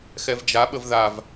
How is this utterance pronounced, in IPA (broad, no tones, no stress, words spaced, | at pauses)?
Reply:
xɛvd͡ʒa ɓəvðav